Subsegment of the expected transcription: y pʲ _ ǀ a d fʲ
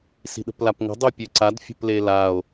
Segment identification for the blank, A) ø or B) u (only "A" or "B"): A